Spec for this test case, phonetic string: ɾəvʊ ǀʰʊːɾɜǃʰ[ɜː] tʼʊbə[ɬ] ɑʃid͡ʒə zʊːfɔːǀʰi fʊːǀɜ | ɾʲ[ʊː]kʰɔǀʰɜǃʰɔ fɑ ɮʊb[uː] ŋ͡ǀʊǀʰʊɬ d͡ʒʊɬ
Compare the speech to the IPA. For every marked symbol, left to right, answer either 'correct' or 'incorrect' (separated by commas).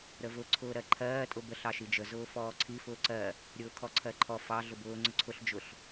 correct, correct, correct, incorrect